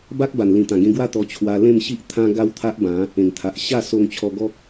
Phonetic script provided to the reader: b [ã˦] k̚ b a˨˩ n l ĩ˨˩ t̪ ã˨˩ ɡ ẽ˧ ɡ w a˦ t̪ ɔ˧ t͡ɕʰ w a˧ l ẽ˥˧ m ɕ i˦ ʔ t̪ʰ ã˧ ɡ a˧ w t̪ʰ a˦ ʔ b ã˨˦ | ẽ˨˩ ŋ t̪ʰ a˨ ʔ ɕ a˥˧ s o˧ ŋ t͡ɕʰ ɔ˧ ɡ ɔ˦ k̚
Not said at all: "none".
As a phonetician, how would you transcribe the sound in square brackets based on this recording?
a˦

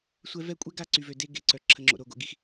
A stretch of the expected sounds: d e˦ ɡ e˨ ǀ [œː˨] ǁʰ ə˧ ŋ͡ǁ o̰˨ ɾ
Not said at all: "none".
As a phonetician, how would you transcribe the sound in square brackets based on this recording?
œ˨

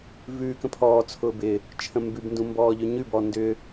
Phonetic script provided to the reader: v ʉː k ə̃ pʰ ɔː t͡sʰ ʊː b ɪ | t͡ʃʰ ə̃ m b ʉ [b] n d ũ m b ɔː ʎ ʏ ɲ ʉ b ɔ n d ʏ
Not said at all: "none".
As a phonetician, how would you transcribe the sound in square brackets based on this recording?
b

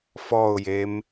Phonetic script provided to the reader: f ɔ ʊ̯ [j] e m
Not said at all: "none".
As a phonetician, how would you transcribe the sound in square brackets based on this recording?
j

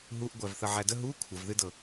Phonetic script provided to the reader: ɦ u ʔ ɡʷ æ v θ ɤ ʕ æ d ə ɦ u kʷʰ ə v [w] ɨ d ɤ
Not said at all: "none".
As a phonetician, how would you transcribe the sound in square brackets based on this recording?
ð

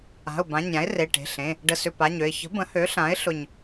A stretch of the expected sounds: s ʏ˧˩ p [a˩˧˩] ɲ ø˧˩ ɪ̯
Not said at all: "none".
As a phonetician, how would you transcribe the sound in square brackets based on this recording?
a˩˧˩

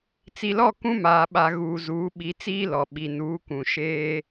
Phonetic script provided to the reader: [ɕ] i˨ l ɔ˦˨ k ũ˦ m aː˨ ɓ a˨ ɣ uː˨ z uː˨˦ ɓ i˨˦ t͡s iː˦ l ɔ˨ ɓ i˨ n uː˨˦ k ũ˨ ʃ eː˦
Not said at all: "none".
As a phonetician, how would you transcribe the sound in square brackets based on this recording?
t͡s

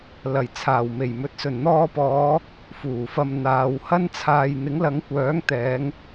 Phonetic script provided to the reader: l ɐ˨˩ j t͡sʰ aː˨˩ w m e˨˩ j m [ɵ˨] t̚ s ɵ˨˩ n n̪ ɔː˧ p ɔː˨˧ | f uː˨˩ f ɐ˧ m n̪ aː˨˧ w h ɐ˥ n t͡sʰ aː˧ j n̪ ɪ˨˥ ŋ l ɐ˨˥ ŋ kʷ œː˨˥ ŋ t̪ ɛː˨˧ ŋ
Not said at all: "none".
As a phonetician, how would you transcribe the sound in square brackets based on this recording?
ɵ˨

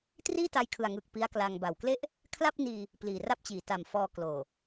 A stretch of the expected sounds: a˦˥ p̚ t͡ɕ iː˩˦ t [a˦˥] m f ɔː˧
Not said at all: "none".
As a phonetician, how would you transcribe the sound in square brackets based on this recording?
a˨˩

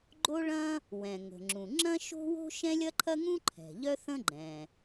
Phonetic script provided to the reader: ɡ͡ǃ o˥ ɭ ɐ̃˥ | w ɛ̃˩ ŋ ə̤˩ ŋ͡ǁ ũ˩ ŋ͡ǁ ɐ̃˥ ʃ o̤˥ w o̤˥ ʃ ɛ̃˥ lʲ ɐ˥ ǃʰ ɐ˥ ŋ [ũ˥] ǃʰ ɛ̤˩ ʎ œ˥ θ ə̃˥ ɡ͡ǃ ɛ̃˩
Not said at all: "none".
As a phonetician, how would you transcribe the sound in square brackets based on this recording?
ũ˥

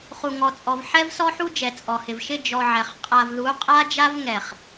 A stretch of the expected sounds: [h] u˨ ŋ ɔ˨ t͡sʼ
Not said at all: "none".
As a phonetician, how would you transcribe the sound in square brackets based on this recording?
χ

